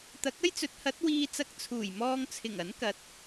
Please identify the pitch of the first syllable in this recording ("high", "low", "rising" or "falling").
rising